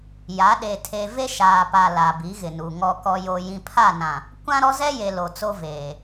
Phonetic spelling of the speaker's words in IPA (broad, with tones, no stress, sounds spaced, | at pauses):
j a˨˦ ɗ e˨ tʰ e˨ v e˦ ʃ aː˨ p a˨ l a˨ b i˨˦ ɣ ɪ˨ n u˨ ŋ ɔ˨ k ɔ˨ j o˨ j ĩ˨ pʰ a˦˨ n ã˨ | kʷ ã˦ ɾ ɔ˦ z ɛ˦ j e˨ l o˨ t͡s o˦ v eː˨